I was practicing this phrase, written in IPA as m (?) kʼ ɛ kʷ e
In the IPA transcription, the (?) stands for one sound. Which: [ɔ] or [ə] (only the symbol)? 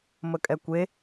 ə